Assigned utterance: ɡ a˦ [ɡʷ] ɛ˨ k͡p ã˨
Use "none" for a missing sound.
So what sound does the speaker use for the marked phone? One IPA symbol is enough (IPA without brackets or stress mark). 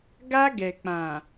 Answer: ɡ